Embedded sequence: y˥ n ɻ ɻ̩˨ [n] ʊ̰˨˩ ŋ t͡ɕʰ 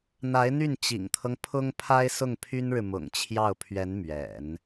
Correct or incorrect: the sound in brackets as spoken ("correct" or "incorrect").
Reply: incorrect